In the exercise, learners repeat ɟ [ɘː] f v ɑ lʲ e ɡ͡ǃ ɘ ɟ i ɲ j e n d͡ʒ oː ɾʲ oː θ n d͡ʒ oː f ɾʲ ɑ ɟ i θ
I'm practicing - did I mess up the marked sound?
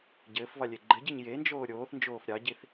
no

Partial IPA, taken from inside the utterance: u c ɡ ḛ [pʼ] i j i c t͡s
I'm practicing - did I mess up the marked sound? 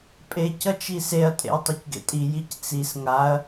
yes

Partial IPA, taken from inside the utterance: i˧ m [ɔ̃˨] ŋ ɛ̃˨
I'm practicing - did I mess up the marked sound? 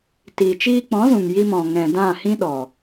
no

